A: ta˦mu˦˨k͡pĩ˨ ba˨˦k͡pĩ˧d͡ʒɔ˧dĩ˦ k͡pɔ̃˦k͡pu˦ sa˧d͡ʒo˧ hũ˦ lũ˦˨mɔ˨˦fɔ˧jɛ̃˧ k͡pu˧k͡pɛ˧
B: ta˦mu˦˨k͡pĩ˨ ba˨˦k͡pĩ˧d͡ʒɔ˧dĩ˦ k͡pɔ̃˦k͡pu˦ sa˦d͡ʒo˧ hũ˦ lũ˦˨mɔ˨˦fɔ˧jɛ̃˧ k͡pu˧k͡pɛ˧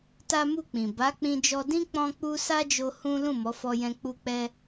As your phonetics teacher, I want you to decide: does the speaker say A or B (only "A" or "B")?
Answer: B